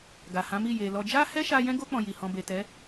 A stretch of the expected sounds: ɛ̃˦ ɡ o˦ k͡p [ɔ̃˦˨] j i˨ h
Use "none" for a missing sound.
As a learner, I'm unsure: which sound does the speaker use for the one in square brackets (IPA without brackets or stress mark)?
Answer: ɔ̃˧